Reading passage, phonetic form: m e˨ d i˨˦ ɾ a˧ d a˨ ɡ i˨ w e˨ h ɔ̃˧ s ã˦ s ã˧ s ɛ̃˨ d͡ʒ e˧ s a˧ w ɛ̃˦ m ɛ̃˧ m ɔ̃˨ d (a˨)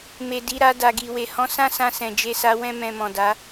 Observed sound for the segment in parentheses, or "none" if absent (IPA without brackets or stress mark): a˨˦